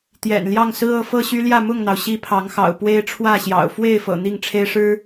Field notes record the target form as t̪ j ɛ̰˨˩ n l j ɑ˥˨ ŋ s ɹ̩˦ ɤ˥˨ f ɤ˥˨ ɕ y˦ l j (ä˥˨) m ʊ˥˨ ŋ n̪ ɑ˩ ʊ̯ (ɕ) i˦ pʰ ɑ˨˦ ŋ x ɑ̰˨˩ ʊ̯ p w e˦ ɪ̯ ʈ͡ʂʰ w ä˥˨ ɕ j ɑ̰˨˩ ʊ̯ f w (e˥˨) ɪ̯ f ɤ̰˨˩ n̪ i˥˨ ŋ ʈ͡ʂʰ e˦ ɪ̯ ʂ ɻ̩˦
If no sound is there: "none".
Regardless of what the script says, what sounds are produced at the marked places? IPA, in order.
ä˥˨, ɕ, e˥˨

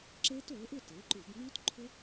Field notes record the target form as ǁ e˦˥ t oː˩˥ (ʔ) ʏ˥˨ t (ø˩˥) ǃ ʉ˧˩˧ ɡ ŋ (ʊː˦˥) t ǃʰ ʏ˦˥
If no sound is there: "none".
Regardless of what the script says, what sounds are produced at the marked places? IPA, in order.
ʔ, e˩˥, ʉː˦˥

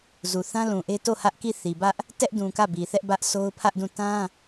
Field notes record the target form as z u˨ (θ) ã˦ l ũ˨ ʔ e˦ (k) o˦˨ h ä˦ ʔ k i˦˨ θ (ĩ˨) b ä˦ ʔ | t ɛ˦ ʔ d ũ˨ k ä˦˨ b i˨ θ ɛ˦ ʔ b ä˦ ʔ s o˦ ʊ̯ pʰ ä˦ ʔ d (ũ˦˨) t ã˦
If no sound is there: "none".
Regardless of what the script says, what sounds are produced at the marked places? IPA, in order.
θ, t, i˨, ũ˦˨

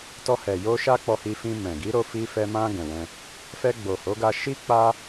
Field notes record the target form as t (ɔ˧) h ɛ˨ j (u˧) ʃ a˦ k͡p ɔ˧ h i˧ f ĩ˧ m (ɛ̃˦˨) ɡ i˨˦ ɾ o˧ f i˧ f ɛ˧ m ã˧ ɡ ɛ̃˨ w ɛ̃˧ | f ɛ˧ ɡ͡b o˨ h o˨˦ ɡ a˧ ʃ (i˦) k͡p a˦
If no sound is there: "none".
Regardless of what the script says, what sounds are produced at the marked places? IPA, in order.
ɔ˧, o˧, ɛ̃˨, i˦

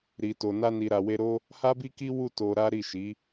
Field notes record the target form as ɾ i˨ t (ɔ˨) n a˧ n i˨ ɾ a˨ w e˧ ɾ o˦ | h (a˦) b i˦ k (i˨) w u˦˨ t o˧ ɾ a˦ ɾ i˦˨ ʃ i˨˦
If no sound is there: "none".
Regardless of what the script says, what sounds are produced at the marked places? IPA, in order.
o˨, a˦, i˦

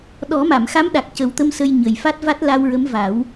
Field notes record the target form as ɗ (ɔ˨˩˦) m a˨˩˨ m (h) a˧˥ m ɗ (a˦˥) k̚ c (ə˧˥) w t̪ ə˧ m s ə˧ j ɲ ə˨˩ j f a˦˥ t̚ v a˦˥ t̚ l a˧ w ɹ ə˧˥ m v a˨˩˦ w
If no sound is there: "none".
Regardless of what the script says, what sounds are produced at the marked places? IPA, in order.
ɔ˨˩˦, x, a˨˩, ə˨˩˦

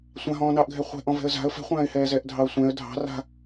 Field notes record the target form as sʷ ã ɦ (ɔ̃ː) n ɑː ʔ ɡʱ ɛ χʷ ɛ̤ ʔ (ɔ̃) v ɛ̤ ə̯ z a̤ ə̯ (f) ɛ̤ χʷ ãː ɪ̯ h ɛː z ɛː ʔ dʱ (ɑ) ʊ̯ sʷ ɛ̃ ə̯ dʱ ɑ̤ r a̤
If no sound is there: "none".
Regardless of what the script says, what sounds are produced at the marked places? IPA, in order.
ɔ̃ː, ɔ̃, f, ɑ

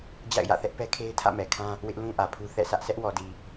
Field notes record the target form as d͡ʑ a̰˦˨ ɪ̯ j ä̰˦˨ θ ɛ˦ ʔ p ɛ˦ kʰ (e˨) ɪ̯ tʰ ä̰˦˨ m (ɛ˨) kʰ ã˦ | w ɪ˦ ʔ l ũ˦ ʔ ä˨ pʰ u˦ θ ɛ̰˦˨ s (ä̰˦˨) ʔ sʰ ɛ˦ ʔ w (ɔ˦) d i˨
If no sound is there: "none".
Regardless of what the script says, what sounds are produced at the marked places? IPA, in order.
e˦, ɛ˨, ä˦, ɔ˨

